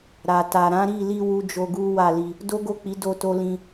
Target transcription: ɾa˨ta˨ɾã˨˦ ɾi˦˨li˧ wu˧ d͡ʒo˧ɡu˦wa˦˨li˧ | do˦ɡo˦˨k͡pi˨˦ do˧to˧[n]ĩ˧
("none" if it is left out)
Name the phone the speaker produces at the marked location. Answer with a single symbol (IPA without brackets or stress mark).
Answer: l